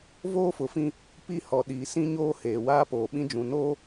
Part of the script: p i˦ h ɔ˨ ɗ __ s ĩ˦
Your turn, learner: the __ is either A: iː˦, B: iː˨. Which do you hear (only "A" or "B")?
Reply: B